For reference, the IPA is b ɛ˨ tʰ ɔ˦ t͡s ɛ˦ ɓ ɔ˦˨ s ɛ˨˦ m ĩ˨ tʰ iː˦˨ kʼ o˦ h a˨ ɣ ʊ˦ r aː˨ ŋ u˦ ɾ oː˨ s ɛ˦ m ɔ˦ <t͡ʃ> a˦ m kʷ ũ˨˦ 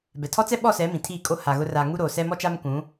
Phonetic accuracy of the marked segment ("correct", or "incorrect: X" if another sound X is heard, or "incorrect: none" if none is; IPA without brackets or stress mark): correct